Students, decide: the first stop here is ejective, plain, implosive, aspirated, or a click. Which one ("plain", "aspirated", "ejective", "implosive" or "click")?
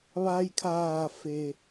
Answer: aspirated